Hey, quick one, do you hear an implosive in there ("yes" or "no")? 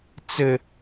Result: no